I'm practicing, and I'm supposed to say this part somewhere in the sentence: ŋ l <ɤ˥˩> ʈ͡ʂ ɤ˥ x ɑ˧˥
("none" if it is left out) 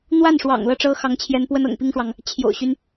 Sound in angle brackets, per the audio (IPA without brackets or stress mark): ɤ˥˩